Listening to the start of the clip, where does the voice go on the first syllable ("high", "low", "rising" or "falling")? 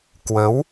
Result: rising